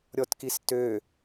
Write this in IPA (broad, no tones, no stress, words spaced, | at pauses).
ɾʲɔtkistø